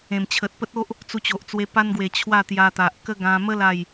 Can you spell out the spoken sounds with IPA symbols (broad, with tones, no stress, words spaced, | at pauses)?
ẽ˨˩mt͡ɕʰə˨t̚pə˦t̚o˦ʔ | t͡su˧t͡ɕo˨ʔt͡swe˧ pa˧nɡwe˨˩ t͡ɕʰwa˥˧t̪ja˧t̪a˨ʔ kə˦ɡã˧ mə˦ la˥˧j